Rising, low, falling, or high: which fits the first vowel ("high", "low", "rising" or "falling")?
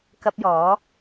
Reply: high